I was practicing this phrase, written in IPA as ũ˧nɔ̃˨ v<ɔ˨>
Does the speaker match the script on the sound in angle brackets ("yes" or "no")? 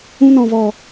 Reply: yes